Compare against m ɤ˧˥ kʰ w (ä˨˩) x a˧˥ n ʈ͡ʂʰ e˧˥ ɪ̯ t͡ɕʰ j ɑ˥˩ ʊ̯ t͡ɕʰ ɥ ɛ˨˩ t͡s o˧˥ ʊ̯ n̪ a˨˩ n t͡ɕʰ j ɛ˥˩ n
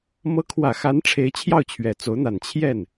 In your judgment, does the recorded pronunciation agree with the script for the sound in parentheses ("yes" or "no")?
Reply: yes